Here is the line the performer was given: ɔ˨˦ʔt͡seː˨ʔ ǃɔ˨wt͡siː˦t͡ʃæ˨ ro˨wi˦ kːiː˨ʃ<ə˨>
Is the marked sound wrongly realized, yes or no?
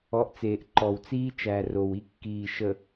no